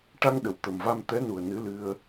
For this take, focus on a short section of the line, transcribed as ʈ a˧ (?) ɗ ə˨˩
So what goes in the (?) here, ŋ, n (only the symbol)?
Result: ŋ